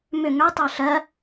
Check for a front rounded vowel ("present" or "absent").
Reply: present